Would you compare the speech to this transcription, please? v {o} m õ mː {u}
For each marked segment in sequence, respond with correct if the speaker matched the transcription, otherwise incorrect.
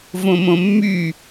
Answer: incorrect: õ, incorrect: y

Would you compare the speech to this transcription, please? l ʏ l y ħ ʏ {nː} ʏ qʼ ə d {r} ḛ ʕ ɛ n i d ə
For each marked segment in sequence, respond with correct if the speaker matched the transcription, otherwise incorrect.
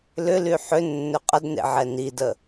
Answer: correct, incorrect: n

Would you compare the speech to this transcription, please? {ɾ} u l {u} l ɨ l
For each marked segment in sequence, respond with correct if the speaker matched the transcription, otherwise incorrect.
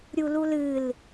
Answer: incorrect: ɾʲ, correct

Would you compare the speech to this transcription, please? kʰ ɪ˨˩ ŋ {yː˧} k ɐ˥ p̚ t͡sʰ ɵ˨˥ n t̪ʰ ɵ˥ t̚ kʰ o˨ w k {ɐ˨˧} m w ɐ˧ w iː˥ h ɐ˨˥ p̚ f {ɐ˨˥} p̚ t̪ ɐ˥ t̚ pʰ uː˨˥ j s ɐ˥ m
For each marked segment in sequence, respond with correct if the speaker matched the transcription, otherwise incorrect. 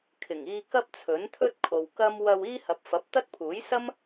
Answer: incorrect: iː˧, incorrect: ɐ˥, correct

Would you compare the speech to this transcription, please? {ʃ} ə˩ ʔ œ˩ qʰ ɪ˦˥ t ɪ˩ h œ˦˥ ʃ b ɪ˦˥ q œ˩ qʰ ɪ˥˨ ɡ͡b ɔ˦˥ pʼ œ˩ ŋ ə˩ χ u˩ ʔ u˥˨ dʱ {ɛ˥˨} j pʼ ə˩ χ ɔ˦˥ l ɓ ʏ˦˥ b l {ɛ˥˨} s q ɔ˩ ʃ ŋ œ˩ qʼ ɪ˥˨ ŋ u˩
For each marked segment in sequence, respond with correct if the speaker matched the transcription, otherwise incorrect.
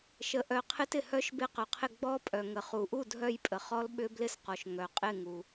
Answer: correct, incorrect: œ˥˨, incorrect: ɪ˥˨

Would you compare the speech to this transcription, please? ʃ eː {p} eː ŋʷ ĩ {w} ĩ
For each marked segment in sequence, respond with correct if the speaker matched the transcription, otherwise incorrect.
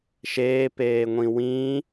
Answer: correct, correct

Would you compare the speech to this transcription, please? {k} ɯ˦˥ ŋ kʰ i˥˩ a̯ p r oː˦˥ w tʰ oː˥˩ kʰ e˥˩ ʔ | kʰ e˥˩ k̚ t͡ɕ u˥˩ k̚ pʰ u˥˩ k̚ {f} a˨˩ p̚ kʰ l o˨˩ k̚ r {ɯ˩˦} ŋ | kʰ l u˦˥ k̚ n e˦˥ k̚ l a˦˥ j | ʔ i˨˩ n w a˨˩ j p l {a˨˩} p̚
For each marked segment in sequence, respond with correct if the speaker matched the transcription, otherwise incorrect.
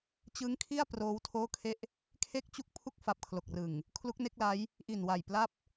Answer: incorrect: t͡ɕ, correct, incorrect: ɯ˨˩, incorrect: a˥˩

